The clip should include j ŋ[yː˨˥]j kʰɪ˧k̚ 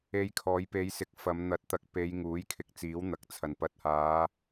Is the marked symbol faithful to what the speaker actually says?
no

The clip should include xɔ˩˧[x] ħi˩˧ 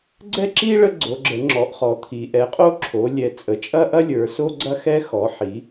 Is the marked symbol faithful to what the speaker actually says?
no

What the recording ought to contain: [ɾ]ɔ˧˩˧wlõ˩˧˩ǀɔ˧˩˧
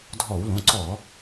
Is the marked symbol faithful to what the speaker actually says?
no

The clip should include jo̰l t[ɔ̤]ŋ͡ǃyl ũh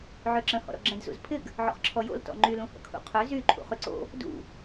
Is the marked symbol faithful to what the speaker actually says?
no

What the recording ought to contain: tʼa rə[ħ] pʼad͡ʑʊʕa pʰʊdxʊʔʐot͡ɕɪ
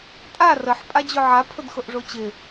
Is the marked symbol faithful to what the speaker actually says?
yes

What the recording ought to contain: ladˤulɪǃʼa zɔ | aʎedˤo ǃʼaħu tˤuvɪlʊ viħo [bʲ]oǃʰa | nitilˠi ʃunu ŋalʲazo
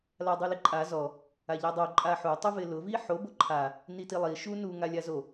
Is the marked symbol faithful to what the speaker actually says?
no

